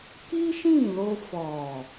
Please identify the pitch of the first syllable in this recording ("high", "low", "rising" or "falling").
high